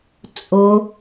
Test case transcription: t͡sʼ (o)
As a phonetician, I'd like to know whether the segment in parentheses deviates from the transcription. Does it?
no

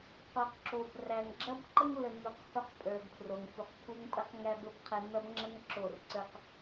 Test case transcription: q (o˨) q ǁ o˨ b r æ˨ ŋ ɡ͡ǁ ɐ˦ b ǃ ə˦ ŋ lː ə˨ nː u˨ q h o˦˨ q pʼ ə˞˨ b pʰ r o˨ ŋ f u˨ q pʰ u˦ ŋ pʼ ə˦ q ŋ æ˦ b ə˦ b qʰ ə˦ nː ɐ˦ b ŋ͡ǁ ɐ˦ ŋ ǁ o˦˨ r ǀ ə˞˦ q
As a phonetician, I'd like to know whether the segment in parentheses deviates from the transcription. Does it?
no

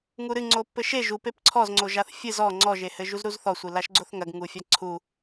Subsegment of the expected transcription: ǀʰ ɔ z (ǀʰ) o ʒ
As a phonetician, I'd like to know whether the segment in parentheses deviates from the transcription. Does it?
yes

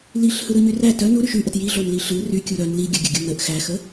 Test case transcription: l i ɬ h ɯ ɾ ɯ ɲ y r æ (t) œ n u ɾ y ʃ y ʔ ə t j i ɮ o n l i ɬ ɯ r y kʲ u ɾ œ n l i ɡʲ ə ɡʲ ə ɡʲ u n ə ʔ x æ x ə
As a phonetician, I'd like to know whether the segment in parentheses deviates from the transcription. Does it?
no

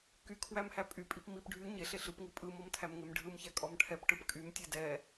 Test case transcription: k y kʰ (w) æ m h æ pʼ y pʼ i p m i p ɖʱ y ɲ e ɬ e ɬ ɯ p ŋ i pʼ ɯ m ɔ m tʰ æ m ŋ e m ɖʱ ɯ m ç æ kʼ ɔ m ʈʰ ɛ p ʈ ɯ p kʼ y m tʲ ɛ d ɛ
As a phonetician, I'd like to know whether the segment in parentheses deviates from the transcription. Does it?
no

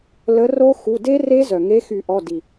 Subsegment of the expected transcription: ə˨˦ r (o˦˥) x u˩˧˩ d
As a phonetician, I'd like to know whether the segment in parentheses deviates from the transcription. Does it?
no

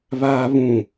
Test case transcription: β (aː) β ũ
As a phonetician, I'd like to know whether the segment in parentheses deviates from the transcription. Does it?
no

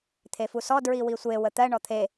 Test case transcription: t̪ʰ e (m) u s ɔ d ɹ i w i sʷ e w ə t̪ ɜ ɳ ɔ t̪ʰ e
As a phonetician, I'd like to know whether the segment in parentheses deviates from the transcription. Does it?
yes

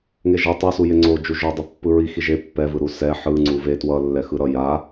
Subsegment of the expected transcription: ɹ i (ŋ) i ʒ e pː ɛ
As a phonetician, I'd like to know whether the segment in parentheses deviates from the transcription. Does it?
yes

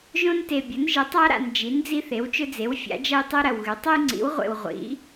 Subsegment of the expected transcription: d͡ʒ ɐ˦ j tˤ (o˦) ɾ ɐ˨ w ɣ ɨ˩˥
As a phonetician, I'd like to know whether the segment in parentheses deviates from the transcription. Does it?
no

